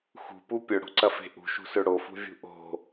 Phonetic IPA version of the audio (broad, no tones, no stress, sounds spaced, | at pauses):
x ṳ p u pʲ ɵ ɽ o̤ ǀ ɐ f e̤ ʔ ṳ ʃ ṳ s ø ɽ o f ṳ vʲ ṳ ʔ o̤